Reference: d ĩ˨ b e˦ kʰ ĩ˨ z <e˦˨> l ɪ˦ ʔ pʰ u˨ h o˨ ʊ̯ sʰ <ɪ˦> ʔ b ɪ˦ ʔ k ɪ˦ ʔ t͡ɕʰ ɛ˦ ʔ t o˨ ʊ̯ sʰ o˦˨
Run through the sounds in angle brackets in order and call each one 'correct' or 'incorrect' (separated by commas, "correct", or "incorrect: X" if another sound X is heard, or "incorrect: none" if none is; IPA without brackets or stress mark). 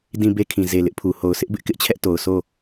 incorrect: e˨, correct